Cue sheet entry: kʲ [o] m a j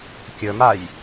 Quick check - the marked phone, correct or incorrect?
incorrect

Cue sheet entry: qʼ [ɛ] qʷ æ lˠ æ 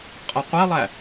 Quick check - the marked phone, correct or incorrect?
correct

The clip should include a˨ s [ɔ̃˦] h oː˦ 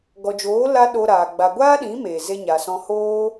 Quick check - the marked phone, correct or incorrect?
incorrect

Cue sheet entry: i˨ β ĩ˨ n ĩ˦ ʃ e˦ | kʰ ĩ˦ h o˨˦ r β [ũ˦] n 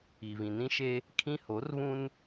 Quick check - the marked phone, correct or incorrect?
correct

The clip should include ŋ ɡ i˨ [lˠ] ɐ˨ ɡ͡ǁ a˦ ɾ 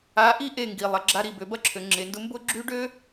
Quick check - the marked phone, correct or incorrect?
correct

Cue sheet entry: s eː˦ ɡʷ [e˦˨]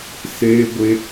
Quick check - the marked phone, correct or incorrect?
incorrect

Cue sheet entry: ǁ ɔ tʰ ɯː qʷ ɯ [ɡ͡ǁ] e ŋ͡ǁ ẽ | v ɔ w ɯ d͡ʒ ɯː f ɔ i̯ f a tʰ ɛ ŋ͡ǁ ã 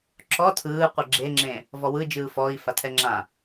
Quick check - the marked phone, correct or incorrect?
correct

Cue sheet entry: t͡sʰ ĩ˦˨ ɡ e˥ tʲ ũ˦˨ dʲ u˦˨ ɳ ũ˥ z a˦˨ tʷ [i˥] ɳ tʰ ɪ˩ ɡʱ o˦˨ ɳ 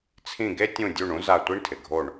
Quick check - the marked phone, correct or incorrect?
correct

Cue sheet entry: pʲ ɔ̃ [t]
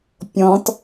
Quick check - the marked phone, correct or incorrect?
correct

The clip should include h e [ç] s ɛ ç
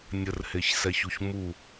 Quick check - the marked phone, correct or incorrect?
correct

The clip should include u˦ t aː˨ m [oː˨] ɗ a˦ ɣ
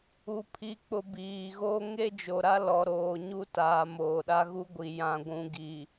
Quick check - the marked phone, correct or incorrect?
correct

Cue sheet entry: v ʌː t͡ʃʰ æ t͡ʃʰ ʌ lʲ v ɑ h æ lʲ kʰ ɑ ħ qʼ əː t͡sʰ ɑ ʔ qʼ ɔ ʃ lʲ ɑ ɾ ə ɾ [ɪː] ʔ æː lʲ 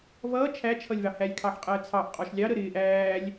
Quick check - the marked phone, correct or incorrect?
correct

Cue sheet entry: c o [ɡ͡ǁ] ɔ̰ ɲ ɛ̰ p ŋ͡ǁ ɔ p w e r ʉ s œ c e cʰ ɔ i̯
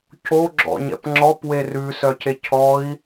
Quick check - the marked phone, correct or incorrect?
correct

